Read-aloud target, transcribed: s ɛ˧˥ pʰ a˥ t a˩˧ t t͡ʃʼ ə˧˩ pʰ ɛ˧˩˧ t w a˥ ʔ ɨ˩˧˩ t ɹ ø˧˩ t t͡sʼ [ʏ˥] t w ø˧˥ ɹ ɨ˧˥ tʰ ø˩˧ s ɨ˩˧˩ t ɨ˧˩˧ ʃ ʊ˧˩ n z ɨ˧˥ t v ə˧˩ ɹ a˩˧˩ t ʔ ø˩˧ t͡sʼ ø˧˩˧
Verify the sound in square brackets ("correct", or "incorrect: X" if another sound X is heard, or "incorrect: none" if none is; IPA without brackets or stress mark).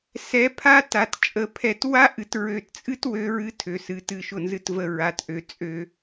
incorrect: ɨ˥